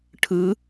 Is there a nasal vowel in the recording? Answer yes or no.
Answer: no